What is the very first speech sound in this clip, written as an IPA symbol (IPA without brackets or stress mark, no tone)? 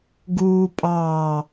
ɡ